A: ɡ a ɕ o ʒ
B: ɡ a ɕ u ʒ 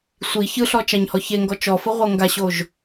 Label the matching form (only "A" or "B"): A